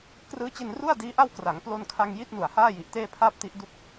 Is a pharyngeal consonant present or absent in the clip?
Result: absent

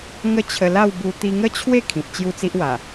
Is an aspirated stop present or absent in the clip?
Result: present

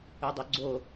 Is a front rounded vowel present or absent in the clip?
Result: present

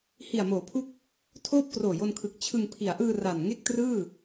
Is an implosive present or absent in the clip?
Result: absent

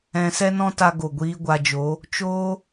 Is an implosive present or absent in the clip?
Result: absent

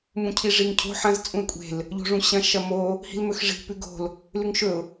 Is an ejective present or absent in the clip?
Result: present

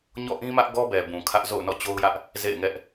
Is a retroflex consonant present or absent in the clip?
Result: absent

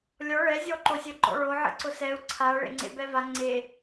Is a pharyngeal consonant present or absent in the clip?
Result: present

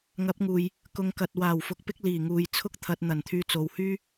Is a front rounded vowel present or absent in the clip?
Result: present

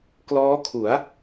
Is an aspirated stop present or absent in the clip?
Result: present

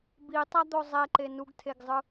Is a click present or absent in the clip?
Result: present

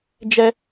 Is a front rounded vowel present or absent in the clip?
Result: absent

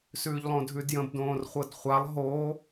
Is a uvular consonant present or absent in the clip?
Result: present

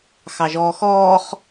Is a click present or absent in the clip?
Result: absent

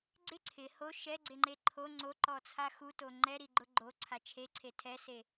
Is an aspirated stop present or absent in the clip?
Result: present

